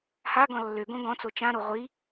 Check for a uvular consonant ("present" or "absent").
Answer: present